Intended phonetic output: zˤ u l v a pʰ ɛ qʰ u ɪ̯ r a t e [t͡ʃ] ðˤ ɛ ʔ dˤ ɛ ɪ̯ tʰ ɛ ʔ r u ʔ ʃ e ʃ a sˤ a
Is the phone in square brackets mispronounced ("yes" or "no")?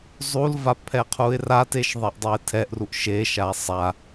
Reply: yes